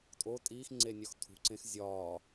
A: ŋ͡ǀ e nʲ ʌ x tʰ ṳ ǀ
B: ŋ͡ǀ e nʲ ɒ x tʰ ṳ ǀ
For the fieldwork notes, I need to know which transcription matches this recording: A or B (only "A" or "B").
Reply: B